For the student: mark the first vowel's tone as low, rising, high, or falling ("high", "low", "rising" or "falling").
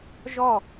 falling